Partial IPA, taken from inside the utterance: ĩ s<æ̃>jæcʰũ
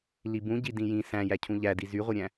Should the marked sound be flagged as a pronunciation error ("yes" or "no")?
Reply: no